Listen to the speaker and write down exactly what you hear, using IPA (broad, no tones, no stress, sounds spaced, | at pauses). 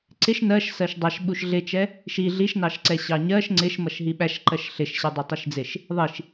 ǀ ɪ ʃ n ɜ ʃ s ɜ ʃ dˤ ɑ ʃ ɓ u ʃ ɮ ɪ t͡ʃ ɛ | ʃ i ɮ i ʃ n ɑ ʃ ǀ ɛ ɕ ɑ ɲ ɜ ʃ ŋ͡ǀ ɪ ʃ m ʌ ʃ ɦ i ɓ æ ʃ ǃ ɜ ʃ ɬ ɪ ʃ ɕ ɛ dˤ ɛ tˤ i ʃ d͡z ɪ ʃ | ðˤ i ʃ